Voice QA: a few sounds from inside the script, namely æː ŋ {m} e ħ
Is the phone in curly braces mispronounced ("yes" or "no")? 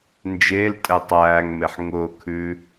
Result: no